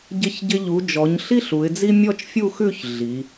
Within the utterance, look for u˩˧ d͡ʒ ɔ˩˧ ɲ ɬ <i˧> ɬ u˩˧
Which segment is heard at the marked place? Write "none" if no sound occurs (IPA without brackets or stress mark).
i˥